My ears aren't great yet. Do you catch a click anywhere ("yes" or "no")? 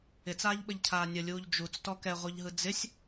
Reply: no